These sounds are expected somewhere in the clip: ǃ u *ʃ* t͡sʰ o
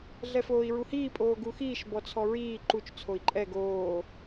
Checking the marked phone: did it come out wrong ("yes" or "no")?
yes